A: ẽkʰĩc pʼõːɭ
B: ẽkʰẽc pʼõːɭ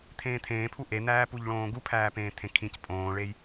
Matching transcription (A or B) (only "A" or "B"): A